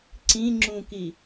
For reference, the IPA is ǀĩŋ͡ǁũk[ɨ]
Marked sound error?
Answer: yes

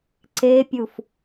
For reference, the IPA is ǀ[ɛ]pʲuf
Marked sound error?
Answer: yes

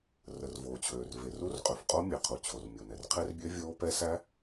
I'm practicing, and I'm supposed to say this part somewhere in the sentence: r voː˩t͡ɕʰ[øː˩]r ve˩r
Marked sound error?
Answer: no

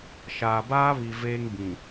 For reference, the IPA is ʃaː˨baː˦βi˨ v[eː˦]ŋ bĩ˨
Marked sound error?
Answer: no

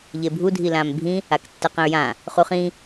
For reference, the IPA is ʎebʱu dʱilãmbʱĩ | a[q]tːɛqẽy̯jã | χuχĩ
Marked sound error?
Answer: yes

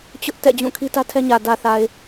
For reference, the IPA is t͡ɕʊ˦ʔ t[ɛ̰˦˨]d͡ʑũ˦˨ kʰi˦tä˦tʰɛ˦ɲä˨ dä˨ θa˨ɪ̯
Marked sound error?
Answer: no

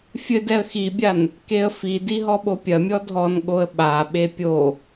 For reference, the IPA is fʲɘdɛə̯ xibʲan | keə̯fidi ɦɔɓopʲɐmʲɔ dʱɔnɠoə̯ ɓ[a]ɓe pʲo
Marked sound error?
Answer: no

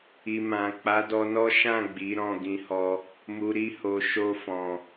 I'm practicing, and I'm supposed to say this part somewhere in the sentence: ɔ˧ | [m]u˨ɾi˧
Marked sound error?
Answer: no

